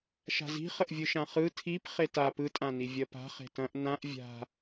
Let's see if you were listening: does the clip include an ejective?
yes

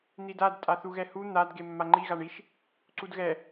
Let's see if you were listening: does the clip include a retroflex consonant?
yes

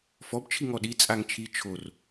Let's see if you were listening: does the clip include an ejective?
yes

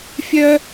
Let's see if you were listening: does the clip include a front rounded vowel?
yes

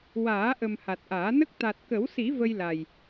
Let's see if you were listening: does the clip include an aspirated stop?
no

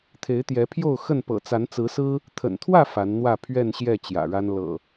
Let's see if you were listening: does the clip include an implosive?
no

